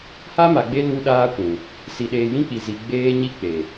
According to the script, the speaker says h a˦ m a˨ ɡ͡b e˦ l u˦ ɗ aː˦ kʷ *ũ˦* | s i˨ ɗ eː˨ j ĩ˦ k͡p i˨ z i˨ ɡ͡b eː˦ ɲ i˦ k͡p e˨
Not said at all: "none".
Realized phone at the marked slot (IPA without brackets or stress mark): ũ˨